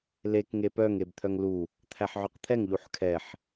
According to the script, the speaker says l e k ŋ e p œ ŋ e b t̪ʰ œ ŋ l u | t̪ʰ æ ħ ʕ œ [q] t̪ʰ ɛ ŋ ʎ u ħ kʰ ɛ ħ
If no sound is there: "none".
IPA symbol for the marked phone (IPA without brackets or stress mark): q